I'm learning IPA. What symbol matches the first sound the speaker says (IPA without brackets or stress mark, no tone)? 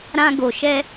ɾ